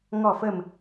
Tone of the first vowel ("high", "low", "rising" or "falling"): low